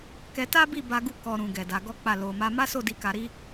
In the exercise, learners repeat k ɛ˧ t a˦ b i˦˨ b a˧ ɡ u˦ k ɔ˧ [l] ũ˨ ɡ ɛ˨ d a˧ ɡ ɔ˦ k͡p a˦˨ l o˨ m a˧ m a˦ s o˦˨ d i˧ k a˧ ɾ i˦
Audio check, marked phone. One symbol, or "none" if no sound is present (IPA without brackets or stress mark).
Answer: ɾ